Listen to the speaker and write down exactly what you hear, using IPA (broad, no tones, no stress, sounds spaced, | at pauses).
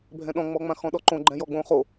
bʱ ɛ̃ ɗ ɔ̃ ŋ͡m ɔ ŋ͡m ã x ɔ̃ ɗ ɔ ǃ õ ɡ͡ǃ ɛ̃ j ɔ ɡ͡b õ χ o